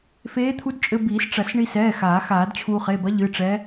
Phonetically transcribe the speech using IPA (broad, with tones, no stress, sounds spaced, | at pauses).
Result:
f eː˧˥ t̪ʰ u˧˥ d t͡ʃʼ ɘ˧ b iː˨˩˦ s ʈ͡ʂ ɐ˨˩˦ s ɳ i˧ s ɛː˩˧˩ x aː˨˩˦ x aː˨˩˦ d t͡ɕʰ uː˧ χ e˩˧˩ b ɐ˧˥ ʎ ɨ˩˧˩ ʈ͡ʂ ɛː˧˥